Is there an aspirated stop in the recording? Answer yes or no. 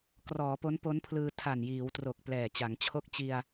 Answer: yes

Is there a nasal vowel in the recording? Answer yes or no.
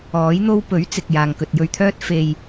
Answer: no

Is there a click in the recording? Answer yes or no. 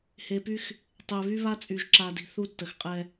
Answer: yes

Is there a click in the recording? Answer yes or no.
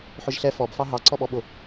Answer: yes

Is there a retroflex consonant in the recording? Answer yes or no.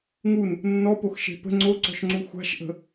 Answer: no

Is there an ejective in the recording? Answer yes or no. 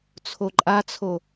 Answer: yes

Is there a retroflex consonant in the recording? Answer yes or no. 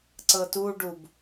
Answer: yes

